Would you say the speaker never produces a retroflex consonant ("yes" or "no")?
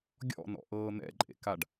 no